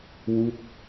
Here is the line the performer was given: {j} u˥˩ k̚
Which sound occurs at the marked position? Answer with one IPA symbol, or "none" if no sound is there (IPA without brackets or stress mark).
w